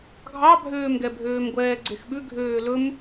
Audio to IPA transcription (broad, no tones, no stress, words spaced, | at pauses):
ɡʱɑbʱøːmɡɛbʱøːm ɡʷɛːɡ͡ǀexɓʉ ɡʱøːlɵm